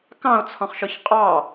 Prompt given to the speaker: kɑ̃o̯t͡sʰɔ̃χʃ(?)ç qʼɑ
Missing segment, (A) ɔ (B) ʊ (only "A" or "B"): A